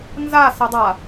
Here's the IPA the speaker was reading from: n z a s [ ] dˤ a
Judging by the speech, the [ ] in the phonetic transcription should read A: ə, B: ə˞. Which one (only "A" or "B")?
A